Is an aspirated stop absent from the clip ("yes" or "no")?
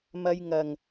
yes